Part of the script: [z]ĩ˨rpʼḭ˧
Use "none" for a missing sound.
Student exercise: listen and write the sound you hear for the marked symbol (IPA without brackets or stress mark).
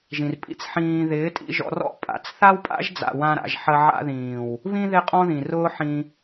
ʒ